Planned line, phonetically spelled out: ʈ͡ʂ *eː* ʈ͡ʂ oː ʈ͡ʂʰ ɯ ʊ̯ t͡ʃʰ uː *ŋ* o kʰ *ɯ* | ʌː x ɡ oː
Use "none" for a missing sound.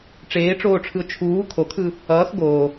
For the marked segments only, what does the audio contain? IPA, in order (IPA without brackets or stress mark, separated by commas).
eː, kʰ, ɯ